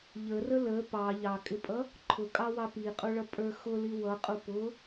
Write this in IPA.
ʎərə lə pɑ ʎɑkʼɪpʼʌ | ǃʰʊkʼɑwɑ piqʼuɭʌpʼə˞ xʊli wʌqʼu pʊ

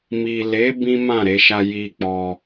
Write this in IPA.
mi˨le˨˦ bĩ˦mã˦˨ɾe˧ʃa˧ ji˧k͡pɔ˧

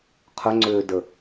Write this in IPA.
qʰʏŋ͡ǀʏːdə

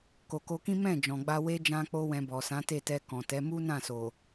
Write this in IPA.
ko˨ko˧kĩ˦ mɛ̃˦˨d͡ʒɔ̃˨ɡ͡ba˧ we˦ d͡ʒã˦k͡po˦wɛ̃˧ bɔ˨sã˨˦te˦˨ tɛ˧ kɔ̃˨tɛ˨˦ mu˦nã˦˨so˨

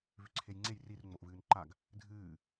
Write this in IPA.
vʉǀʰejŋ͡ǀej rir ŋ͡moʔvɨːnǃaɡ | dʱɨː

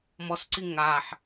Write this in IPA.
mɔsǀi ŋaħ

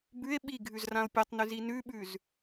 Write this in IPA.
bʉe̯ ɓi ɡʱʉzrão̯pʲɐtˤnʉz inʉɓʉz

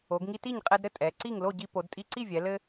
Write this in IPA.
o˩˧ɡŋi˧ ti˥˩ɲqʼɛ˧dɾɘ˥˩ tʼɛ˩˧ǀi˥˩ŋ lo˥˩ɟi˧po˩˧d tʼi˧ǀi˥˩vʲɛ˩˧ lɘ˧

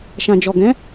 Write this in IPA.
ʃã˨d͡ʒɔ˨ɡɛ̃˨˦

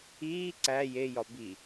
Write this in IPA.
iː ǀæ jejɒ bi

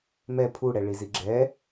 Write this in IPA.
mɛ pʰu ɽɛɭiziɡ͡ǁɛ

